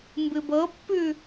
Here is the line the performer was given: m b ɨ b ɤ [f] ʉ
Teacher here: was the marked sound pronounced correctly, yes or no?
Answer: no